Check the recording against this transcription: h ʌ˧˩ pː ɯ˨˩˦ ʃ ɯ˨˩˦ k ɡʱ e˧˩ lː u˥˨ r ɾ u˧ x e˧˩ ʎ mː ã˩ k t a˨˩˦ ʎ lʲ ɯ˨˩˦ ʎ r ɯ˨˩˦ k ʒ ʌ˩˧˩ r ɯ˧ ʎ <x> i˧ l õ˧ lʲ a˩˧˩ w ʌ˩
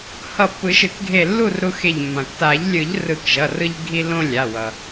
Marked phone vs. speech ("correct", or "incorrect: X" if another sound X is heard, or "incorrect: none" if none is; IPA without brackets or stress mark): incorrect: ɡʱ